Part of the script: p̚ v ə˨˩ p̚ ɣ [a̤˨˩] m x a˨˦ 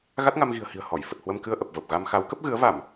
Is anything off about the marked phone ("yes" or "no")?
yes